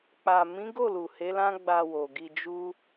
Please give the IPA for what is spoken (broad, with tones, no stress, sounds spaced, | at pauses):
k͡p a˨ m ĩ˨˦ ɡ o˦˨ l u˨ h e˨˦ l ã˦ ɡ͡b a˧ w o˨ ɡ i˧ d͡ʒ u˦